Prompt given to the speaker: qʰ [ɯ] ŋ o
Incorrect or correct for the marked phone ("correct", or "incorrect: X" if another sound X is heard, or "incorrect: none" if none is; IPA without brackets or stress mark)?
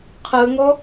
correct